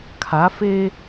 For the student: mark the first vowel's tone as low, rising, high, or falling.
rising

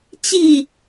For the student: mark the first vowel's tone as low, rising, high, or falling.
falling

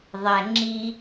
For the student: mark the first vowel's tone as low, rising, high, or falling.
low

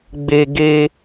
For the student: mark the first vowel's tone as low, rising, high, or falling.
high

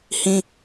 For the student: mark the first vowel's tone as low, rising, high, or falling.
high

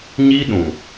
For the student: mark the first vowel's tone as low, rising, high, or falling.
high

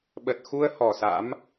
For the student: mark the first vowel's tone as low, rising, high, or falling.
low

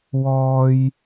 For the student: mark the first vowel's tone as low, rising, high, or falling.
high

